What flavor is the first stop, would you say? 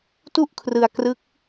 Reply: plain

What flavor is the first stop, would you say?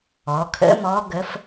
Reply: aspirated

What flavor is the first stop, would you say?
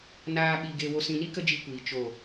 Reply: implosive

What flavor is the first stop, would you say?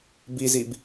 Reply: plain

